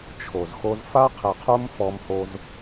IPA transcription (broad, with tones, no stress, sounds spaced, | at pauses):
t͡ʃʰ o˨ z x o˦ z f a˦ qʰ e˨ qʰ o˦ m f ɔ˦ m h o˦ z